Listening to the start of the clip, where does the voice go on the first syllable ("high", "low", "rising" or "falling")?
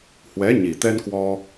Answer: rising